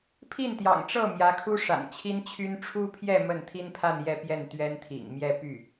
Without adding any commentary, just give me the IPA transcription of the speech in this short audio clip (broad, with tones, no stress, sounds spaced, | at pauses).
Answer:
pʰ i˥˩ n t̪ j ɑ̰˨˩ ŋ ʈ͡ʂ ɤ˥˩ m j ä˧˥ kʰ u˥ ʂ a̰˨˩ n t͡ɕʰ i˥ n t͡ɕʰ y˥ n ʈ͡ʂʰ u˥ pʰ j ɛ˥˧ m ə˥˩ n t̪ʰ i˥ n pʰ a˥˧ n j ɛ˥˧ p j ɛ˥˩ n t̪ ɥ ɛ˥ n t̪ʰ ḭ˨˩ ŋ m j ɛ˥˧ p y˥˩